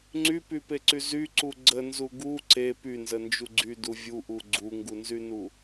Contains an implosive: no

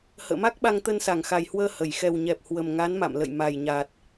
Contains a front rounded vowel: no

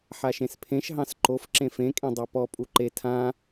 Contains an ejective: yes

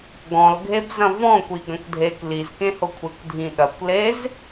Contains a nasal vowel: yes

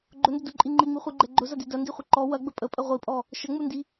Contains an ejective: yes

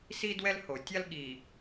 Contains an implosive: yes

